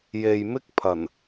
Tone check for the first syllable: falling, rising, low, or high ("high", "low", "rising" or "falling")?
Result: low